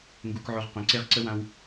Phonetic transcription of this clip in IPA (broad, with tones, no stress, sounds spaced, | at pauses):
ŋ ɡ u˧ k ʕ o˧ ʁ q œ̃˨ ǀ e˧ ʁ ǀ ə˧ w ã˧ w